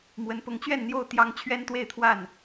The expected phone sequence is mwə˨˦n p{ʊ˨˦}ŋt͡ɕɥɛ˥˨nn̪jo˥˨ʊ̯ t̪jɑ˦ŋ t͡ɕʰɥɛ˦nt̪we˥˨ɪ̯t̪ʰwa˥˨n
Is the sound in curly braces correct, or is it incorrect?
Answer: correct